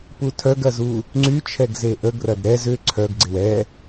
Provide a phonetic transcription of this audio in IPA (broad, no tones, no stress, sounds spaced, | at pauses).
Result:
p u tʰ œ ɡ ɐ z u | ŋ͡ǀ y t͡ʃʰ ɛ ɡ z e ʔ ə ɡ r ɐ d ɾ ɛ z ʏ ǀʰ œ ɡ ɡ͡ǀ ɪ w ɛ